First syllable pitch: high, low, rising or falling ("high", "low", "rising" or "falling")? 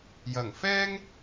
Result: low